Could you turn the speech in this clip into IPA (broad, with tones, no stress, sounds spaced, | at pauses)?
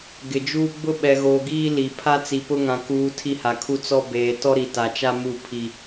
ɡ ɪ˨ d͡ʒ uː˦ ɡ͡b ʊ˦ ɓ ɛ˨ ɣ oː˨ ɡ iː˦ l i˨ pʰ a˦ t͡s i˨ p ʊ˦ ŋ ã˨ k uː˨ tʰ i˦ h a˨ kʰ u˦ t͡s ɔ˦ b eː˨ t ɔ˦ ɾ i˨ t a˨ t͡ʃ a˦ m u˦˨ pʰ i˨